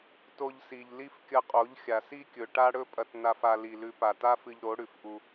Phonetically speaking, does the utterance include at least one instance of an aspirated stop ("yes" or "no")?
no